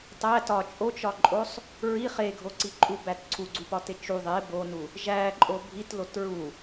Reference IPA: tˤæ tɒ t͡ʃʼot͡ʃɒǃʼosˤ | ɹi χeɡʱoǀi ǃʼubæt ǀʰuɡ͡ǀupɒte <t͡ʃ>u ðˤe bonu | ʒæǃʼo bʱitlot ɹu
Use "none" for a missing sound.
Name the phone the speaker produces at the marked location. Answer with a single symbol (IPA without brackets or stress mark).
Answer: t͡ʃ